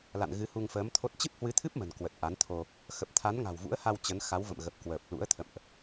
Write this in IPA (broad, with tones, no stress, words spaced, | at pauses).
la̰˧˨nɣɨ˨˦hu˧ŋ fəː˨˦mt̪ʰo˦˥t̚ t͡ɕɨ˦˥p̚hwɨ˨˦t̪ʰɨ˦˥p̚ mə̤˨˩nkwə˨˩t̚ ʔa˨˦nt̪ʰo˧ | xə˨˩p̚ t̪ʰa˨˦nŋa̤˨˩wvṵ˧˥ə̯ha˧w t͡ɕə˨˦nxa˨˦wvə̰˧˨mɣə˨˩p̚ kwəː˨˩p̚ lṵ˧˥ə̯t̪ʰə̰˧˨mʔ